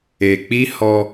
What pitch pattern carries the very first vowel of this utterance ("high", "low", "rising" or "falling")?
low